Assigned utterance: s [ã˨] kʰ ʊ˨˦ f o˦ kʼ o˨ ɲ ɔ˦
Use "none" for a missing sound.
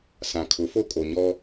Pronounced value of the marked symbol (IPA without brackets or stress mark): ã˨